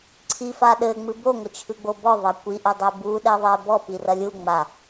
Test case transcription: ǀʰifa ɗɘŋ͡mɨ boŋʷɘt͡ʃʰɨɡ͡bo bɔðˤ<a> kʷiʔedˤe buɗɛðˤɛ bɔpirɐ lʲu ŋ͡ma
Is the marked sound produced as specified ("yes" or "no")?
no